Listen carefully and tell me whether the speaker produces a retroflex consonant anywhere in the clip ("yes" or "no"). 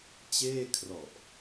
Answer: no